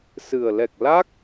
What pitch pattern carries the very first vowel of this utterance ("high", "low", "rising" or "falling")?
low